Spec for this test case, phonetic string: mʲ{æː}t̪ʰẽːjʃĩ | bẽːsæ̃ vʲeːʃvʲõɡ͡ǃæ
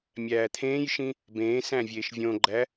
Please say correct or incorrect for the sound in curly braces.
correct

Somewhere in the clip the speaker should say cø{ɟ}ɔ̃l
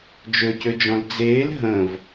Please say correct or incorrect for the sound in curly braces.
incorrect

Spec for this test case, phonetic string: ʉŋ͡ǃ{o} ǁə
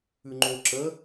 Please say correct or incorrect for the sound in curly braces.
correct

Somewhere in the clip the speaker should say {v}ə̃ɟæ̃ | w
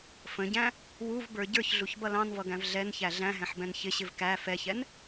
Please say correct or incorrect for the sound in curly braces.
incorrect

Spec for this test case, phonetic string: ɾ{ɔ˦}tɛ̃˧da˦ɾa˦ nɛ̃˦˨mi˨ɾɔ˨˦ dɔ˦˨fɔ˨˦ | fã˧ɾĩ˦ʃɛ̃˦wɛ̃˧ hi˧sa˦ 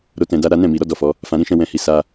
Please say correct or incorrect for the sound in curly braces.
incorrect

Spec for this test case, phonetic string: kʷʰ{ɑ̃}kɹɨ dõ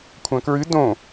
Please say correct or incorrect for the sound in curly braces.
incorrect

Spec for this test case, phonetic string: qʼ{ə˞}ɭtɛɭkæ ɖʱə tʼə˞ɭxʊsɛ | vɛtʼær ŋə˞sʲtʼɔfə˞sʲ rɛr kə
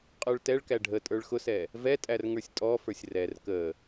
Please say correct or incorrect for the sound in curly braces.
correct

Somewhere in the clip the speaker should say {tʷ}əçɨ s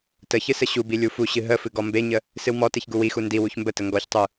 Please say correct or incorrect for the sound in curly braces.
incorrect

